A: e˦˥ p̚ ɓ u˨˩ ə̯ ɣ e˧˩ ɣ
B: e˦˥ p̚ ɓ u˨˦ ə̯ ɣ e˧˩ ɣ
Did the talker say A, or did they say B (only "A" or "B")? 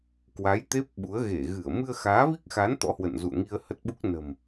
B